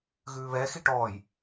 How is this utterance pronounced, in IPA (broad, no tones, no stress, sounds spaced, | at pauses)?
ɣ ʉː β ɛ x i ʈ ɔː j